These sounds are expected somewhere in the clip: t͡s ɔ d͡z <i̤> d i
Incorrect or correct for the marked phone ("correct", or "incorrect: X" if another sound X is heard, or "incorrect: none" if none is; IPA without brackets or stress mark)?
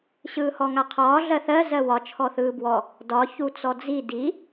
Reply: incorrect: i